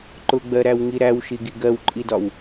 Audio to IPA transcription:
ǃ ʊ ɡ͡b ɜ ɾ æ w ŋ i ɾ æ w ʃ i ɡ i ɡ ɜ w ǃʼ i d ɒ w

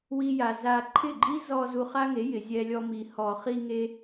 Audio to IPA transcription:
w i˦ j a˧ z a˧ ǃʰ ɪ˦˨ ɡ͡ǃ i˦ z ɔ˧ z u˧ χ a˦ ŋ e˨˦ j ɪ˨ zʲ ɛ˧ lʲ ɔ˧ m i˨ h ɔ˨ χ i˧ ŋ e˧

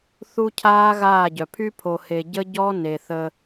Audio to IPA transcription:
θ u˦ cʰ aː˦ ɣ aː˦˨ ɟ œ˨ pʰ y˦ pʰ o˨ h e˨ ɟ ə˦ ɟ ɔ˦ n e˨ θ ə˦

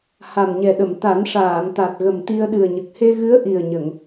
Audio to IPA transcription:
h a˨˩ m ɲ ɛ˨˩ ɗ ə˨˩˨ m t̪ a˨˩˦ n ʂ aː˨˩˨ m t̪ a˨˩ t̚ ɣ ə˨˩ m t̪ i˧ ə̯ ɗ ɨ˨˩ ə̯ ɲ ə˨˩ k̚ h e˧ ɣ ɨ˧˥ ə̯ ʔ i˨˩ ə̯ ɲ ə˨˩˨ ŋ

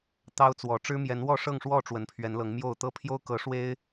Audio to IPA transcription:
t̪ ɑ˦ ʊ̯ t͡s w ɔ˨˦ ʈ͡ʂ ɻ̩˦ m j ɛ˨˦ n w ɔ˥˨ ʂ ɤ˥˨ ŋ ʂ w ɔ˥˨ ʈ͡ʂ w ə˨˦ n pʰ ɥ ɛ˨˦ n l ɤ˨˦ ŋ m j o˥˨ ʊ̯ t̪ ɤ˦ pʰ j o˦ ʊ̯ k ɤ˨˦ ʂ w e˦ ɪ̯

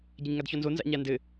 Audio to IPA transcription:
ɟ ɐ ɲ ŋ a d ç ɔ n z o n z a̰ ɲ a n d ɘ

